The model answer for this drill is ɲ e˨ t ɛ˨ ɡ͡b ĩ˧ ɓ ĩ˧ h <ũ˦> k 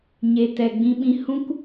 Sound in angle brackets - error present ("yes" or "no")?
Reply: no